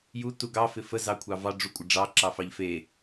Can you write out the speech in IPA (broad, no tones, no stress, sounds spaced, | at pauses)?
j u t u ɡ ɑ f ɪ f ə z ɑ kʷʰ ɑ v ɑ ɖ͡ʐ u kʷʼ ɪ ɖ͡ʐ ɑ ǁ ɑ f ɑ ʎ f e